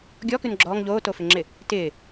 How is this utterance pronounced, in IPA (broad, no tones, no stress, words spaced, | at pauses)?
ɡʲɔkʉn ɡ͡ǁɔːŋ ʎoːtofɪŋ͡ǁɪ | tɪː